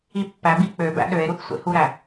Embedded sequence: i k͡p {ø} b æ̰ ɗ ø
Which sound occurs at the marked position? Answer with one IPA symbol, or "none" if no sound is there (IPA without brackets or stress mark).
ø